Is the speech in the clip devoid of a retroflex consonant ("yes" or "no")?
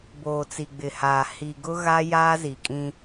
yes